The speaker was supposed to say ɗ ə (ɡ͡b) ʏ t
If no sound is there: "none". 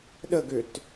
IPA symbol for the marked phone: ɡ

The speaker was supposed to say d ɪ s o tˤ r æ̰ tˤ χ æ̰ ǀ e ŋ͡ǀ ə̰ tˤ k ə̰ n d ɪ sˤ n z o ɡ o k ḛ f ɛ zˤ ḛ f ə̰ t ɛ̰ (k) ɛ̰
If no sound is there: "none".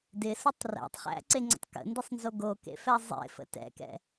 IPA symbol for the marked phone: k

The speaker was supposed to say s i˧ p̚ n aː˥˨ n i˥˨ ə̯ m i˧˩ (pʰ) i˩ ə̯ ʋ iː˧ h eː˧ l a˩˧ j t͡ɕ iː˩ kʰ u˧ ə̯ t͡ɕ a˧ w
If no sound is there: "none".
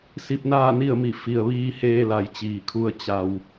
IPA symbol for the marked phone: f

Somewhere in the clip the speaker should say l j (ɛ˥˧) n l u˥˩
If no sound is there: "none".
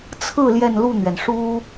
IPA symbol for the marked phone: ɛ˥˧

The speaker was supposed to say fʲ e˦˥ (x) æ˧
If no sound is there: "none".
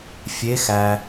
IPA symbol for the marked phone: x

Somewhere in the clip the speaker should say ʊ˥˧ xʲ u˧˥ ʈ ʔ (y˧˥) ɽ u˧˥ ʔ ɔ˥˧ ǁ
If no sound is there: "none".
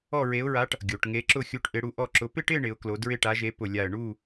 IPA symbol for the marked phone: ɪ˧˥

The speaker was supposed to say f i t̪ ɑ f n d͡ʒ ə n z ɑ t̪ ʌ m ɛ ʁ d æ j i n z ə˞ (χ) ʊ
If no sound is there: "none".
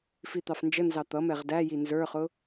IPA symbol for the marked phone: χ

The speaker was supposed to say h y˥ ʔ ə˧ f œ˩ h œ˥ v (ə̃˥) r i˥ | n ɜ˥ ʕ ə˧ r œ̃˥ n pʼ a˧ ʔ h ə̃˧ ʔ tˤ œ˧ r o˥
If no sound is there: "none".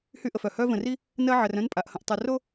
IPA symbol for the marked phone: ə̃˧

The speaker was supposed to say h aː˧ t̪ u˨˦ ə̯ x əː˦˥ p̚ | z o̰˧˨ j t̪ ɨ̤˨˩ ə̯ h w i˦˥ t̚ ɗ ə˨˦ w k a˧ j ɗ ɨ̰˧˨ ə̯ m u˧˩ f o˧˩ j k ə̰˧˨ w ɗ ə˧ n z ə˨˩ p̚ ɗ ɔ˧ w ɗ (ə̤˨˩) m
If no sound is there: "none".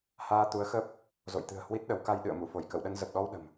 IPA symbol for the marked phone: ə̤˨˩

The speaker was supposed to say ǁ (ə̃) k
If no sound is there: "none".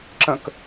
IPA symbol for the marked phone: ə̃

